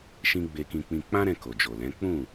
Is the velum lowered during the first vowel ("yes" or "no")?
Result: yes